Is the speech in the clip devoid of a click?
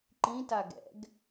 no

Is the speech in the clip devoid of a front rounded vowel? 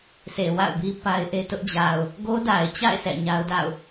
yes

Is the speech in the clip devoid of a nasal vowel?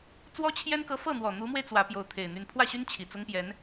yes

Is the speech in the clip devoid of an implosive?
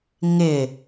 yes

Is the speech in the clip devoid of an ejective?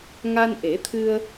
yes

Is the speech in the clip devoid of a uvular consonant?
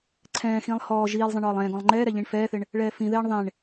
yes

